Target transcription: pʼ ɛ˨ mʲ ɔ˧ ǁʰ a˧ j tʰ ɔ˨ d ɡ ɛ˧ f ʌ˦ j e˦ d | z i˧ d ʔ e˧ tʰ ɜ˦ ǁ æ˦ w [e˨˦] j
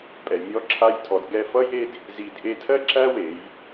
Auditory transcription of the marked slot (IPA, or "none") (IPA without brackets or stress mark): e˨˦